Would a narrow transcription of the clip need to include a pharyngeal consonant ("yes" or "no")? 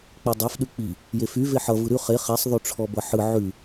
yes